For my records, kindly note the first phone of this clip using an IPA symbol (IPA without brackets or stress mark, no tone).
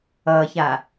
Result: ʌ